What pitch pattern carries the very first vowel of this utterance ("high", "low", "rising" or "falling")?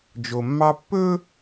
low